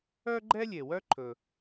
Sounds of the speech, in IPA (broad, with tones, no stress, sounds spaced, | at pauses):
œ˥ ɡ͡ǃ ɛ˥ lʲ e˩ w œ˥ ǃʰ ɵ˩